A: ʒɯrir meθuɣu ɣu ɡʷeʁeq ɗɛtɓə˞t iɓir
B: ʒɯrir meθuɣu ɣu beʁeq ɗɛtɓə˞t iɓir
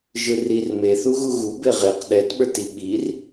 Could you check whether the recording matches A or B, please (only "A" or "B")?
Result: B